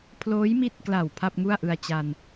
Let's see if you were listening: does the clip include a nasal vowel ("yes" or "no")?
no